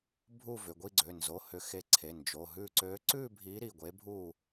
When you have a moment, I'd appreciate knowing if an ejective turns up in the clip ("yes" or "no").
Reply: no